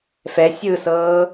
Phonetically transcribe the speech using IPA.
fɛ sʲɯsɤː

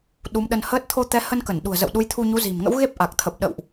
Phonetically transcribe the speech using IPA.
ɗu˨˦mɗə˧nhəː˦˥t̚ t̪ʰo˧t̪ɛ˨˦hə˧n kə˧˩nɗṳ˨˩ə̯zə̰˧˨w ɗu˨˦jt̪ʰu˧ɲu˨˦zi̤˨˩m ŋə̰˧˥wɣe˦˥p̚ʔa˨˩k̚t̪ʰə˨˩p̚ ɗə̰˧˨wʔ

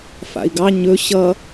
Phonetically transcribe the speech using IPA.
fa̰i̯ɡɑ ɲɵ ɕʌ

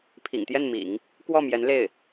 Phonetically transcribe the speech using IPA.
pʰḭ˨˩ŋt̪jɛ˥˩nmḭ˨˩˦ŋ | kwɔ˥˩mjɛ˧˥n le˥˩ɪ̯

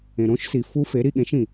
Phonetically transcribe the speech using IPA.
ẽ˩ɾõ˧˥ʃsi˩ fu˧˥fe˩˥ ɾi˩˧ɠẽ˩˥ʃĩ˩

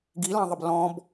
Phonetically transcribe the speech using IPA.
ɡilɑ̃ðˤəb lɔ̃b

